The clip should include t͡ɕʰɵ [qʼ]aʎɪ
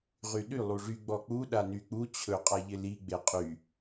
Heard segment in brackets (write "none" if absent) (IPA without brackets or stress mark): qʼ